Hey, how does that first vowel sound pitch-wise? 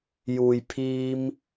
low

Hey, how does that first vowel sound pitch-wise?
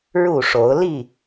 falling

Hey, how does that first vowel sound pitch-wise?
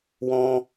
high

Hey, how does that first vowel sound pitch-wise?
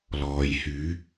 low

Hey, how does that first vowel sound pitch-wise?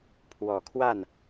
low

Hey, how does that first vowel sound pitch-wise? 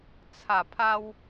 low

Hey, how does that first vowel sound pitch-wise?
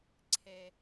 low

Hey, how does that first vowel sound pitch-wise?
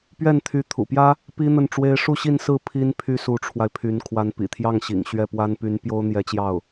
falling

